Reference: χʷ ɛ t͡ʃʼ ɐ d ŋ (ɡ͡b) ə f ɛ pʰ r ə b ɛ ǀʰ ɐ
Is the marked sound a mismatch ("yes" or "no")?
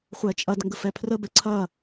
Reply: yes